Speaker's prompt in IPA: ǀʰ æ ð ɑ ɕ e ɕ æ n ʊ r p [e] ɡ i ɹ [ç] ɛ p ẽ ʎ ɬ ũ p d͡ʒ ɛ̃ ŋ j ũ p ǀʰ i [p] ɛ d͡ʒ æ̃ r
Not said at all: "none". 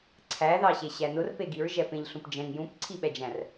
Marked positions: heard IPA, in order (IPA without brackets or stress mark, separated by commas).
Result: e, ʒ, ɓ